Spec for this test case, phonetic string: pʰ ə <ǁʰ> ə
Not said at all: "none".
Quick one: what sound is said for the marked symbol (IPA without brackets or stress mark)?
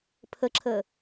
ǁʰ